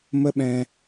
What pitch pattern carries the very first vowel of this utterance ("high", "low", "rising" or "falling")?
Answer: high